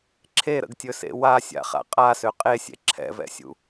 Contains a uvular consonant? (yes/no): yes